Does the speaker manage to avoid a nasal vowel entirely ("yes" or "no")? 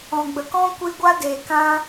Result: no